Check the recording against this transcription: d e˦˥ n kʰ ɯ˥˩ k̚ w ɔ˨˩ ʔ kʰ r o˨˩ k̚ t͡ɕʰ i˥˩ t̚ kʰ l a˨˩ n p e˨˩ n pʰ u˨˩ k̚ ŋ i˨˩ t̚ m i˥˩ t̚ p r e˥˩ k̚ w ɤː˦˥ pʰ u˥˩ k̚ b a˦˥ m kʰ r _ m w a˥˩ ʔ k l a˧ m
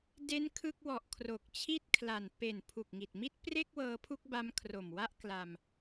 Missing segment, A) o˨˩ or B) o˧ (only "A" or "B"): A